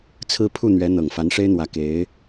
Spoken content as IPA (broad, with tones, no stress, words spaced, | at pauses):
t͡sʰɹ̩˥pʰu˥˩n̪ɥɛ˧˥ n̪ɤ˨˩ŋfa˧˥nʂe˥ɪ̯n̪wä˧˥ ke˧˥ɪ̯